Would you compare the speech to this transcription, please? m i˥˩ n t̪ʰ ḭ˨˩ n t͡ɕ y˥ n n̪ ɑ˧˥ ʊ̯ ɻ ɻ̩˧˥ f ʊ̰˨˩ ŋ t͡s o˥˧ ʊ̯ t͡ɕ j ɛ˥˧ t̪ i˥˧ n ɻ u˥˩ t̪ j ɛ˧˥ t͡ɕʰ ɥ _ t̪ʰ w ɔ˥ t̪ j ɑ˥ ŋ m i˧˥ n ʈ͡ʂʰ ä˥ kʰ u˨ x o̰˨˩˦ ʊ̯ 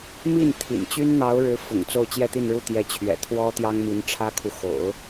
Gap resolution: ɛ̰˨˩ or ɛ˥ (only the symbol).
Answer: ɛ̰˨˩